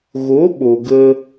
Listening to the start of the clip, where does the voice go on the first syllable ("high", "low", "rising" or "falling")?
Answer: rising